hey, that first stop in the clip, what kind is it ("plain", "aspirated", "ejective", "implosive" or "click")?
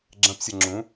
click